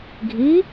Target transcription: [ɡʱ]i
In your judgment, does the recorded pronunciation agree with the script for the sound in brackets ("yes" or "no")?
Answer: yes